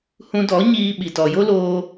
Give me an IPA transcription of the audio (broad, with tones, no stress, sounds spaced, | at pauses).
h ũ˧ d ɔ˨˦ ɲ iː˧ ɓ i˨ t ɔ˨ j o˦ l oː˧